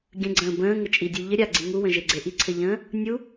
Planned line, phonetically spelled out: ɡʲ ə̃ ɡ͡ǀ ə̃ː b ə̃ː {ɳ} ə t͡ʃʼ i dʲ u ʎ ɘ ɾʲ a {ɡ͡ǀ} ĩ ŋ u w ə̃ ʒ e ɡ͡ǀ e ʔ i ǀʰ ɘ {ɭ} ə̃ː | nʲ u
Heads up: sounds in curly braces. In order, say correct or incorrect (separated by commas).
incorrect, correct, incorrect